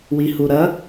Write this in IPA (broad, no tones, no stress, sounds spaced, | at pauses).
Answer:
w i h u ɾ ɐ